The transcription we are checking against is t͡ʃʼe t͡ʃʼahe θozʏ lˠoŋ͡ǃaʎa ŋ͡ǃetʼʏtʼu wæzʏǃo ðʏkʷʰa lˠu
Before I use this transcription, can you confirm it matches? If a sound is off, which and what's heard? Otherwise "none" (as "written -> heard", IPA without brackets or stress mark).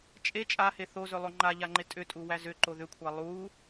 none